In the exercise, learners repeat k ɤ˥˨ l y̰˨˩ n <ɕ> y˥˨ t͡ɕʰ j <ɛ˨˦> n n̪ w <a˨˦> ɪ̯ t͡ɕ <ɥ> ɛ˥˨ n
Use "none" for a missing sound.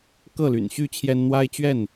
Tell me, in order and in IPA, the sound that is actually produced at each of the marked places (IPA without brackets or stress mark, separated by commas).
ɕ, ɛ˦, a˦, ɥ